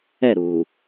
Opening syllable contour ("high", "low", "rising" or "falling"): falling